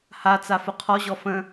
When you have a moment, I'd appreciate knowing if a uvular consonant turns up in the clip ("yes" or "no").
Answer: yes